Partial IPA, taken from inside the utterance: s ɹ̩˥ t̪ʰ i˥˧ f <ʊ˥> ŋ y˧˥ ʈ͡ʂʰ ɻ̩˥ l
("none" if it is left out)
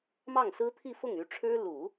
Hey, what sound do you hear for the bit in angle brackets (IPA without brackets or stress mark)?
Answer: ʊ˥˩